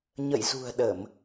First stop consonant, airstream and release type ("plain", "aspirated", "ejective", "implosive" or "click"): implosive